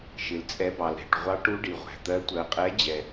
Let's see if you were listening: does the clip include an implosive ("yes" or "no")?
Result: no